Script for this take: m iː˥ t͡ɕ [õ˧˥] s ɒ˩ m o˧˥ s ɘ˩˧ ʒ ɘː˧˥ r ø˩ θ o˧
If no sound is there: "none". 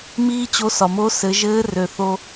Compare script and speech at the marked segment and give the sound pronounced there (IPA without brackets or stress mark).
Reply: o˧˥